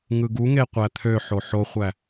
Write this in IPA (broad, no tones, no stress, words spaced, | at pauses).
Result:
ŋɯɡuŋe qʷæt̪ʰøħo ħoχʷæ